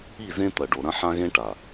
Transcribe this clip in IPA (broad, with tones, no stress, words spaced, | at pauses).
i˦˨zẽ˦ t̪ɐ˨ɖo˨ɾɐ̃˦ ħã˦ɣẽ˦ʈa˨